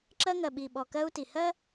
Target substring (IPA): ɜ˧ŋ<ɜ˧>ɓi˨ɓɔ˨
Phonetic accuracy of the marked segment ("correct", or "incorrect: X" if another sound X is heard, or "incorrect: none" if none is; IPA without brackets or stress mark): incorrect: ɜ˨